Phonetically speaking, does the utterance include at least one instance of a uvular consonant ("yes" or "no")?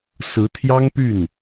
no